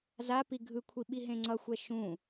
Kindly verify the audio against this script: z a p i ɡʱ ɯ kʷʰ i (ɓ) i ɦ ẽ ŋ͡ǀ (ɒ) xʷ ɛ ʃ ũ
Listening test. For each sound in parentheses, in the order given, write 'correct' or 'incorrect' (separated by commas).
correct, incorrect